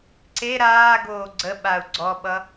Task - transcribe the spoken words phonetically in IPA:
ǀ e ɾ aː ɡ oː ɡ͡ǀ ə ɓ a u̯ ɡ͡ǀ ɔ ɓ ʌ

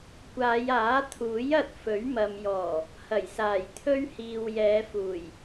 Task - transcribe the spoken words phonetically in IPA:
kʷ aː˨˧ j aː˨˥ t̪ʰ uː˨˥ j ɐ˧ t̚ f ɵ˨˥ ɥ m ɐ˨ m j ɔː˨˩ | h ɐ˨˩ j s aː˨˩ j t̪ʰ ɵ˥ ɥ h iː˨ w j ɛː˨˧ f uː˨˩ j

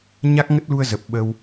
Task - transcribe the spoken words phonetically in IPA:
ɲ a˦˥ k̚ ŋ ə˦˥ t̚ l u˧ ə̯ z ə˨˩ p̚ ɓ ə˧ w

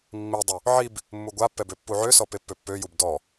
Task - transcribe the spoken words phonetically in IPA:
mː i dˤ u | ʕ i b | mː u ɡʷ a pː ɛ b ø pː u ʕ ø s ɔ p e pː ø pː ø j u b d ɔ

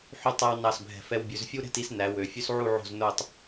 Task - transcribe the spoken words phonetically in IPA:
ħ y˥ tˤ æ˥ w n ɑ˧˩ s bʱ ɛ̤˧˩ f ɛ˧ w bʲ ʉ˩˧ z fʲ u˥ ɾ ɛ̤˥˧ t i˧ s n æ˩˧ w ø˩˧ fʲ ʉ˥ s ʕ u˥˧ ʕ o̤˥˧ z n o˥˧ tˤ

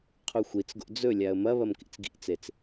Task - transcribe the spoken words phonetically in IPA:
qʰ u xʷ i t͡s ɡ o̰ d͡z ɵ lʲ a ə̯ m ɐ β ɐ m k ḭ t͡s ɡ ḭ t͡s e t͡s

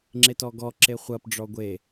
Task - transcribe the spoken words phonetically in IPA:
ŋ͡ǁ e t ɔ ɡ ɔ ǁ e χʷ ɐ p ɖ͡ʐ ɔ ɡʷ e

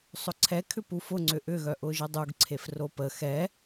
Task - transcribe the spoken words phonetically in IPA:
sˤ ʊ ǀʰ ɛ kʰ ʏ p u f ʊ ŋ͡ǀ ʏ ʔ ʏ ɣ œ ʔ ʊ ʒ ɪ dˤ u ɡ ǀʰ e f r o p ə x ɛ

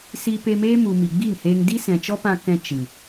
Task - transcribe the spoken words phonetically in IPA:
s i˧ p e˧ m eː˦ m u˨ m i˨ ɡ͡b i˦˨ ŋ h eː˧ ŋ d i˦ s ɛ̃˨ t͡ʃ ɔ˦ p ã˧ k ɛ̃˧ t͡ʃ ɨ˨

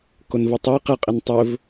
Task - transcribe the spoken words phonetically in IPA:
k o n v ɵ tˤ i q ɨ qʼ i n tˤ ɵ v

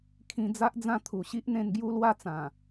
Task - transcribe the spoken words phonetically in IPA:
kʰ ĩ˧ d͡z a˦ ʔ d͡z ã˥˧ t̪ʰ u˨˩ ɕ i˦ ʔ n̪ ẽ˧ n ɡ j u˥˧ l w a˥˧ t͡s ã˨˩

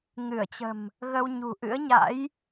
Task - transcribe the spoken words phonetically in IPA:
ŋ ɨ˧˩ ə̯ t͡ɕ ə̤˨˩ m | ɣ ə˧ w ɲ ṳ˨˩ ʔ ɨ̰˧˥ ə̯ ɲ a̰˧˥ j

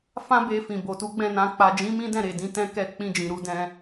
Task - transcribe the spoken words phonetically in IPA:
f ã˦ b e˧ f ĩ˨ b o˨ t u˨˦ ɡ͡b ɛ̃˦˨ n ã˧ k͡p a˨ d͡ʒ ĩ˨˦ m ĩ˦ d ɛ̃˦˨ ɾ e˨ d ĩ˧ t ɛ̃˦ k ɛ˦˨ k͡p ĩ˧ d͡ʒ ĩ˨ ɾ u˨˦ d ɛ̃˦

